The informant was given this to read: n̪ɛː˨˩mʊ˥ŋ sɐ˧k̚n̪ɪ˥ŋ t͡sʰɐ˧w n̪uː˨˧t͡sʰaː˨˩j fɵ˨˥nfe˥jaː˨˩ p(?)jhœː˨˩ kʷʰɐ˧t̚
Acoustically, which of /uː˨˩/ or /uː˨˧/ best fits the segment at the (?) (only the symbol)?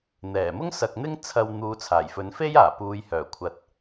uː˨˧